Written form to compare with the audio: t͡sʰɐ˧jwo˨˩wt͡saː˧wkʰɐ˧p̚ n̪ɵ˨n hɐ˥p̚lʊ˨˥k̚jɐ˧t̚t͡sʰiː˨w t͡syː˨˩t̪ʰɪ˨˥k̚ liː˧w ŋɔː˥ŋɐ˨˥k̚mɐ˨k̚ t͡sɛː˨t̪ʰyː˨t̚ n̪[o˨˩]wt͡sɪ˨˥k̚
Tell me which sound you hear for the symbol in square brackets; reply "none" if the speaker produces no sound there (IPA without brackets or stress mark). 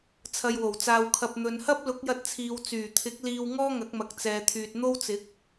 o˥